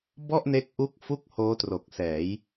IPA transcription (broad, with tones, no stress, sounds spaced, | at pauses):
b ɔ˥˩ ʔ n e˦˥ k̚ ʔ u˦˥ k̚ f u˥˩ k̚ h oː˦˥ t r o˨˩ k̚ s ɛː˩˦ j